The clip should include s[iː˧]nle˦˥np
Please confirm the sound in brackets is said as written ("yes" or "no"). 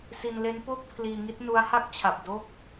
no